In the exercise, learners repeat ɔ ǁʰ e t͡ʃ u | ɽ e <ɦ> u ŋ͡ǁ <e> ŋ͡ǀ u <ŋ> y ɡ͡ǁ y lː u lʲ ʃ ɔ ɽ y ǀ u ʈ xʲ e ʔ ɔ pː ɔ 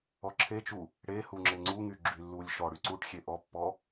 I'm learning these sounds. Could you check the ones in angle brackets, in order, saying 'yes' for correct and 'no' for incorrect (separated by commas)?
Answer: no, yes, yes